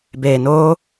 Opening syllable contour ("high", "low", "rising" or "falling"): low